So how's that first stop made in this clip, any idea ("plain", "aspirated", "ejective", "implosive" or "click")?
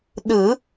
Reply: implosive